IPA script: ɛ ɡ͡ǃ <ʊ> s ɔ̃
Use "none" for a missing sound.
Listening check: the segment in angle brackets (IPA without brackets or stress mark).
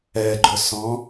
ʊ